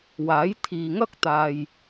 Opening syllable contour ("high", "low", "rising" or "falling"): rising